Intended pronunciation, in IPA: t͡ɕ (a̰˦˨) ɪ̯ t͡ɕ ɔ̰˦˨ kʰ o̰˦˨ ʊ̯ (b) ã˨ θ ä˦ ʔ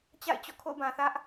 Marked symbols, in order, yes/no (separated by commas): yes, yes